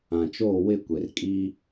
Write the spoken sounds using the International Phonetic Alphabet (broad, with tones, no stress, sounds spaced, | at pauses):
ã˨ t͡ʃ oː˦˨ w ɪ˦˨ kʷ e˨ r kʼ i˦